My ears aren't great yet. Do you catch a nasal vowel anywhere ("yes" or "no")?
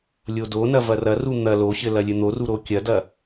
no